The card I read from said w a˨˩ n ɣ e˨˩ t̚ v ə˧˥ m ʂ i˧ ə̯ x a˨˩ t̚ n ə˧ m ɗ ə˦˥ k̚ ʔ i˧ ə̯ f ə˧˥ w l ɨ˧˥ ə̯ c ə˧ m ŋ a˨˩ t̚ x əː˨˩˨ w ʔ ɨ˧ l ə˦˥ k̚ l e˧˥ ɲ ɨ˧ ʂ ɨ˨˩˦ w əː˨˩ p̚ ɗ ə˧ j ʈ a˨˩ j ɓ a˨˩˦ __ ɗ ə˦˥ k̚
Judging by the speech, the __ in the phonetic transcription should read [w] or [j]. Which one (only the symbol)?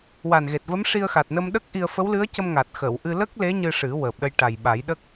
j